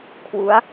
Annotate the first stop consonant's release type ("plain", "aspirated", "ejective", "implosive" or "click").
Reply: aspirated